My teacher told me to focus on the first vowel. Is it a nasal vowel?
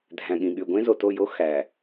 yes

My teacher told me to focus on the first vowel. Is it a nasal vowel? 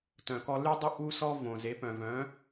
yes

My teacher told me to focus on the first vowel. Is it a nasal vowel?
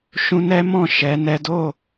yes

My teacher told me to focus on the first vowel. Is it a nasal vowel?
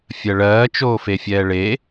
no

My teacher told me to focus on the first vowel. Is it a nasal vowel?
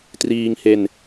no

